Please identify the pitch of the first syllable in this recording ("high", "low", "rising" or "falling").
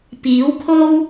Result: rising